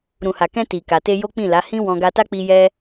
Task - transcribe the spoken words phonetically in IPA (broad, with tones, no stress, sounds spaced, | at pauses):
ɾ ũ˨ h a˨ k ɛ̃˧ t i˨ k a˨ t e˧ j o˦ k͡p ĩ˦˨ l a˨˦ h ĩ˦ w ɔ̃˧ ɡ a˧ t a˦ k͡p i˧ j ɛ˦